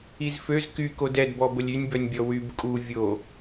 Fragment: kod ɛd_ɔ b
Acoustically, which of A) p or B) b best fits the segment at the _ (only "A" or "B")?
B